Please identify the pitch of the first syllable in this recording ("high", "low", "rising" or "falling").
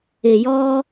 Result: low